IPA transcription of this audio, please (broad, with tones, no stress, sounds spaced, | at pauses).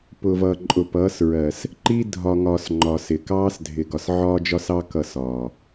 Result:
p ʊ˨ v ʌː˨ ǃʼ ʊ˨ p ʌː˨˦ s ɹ ɜ˨ s | ǃ i˦ dʱ ɒ˨ ŋ ɒː˨ s ŋ͡ǃ ɒ˨ s ɪ˨ k ɑː˦ s dʱ ɪ˨ ɡ ɒ˨ s ʕ ɒː˦ d͡ʒ ɒ˦ s ɑ˦ k ʌ˦˨ s ɒː˨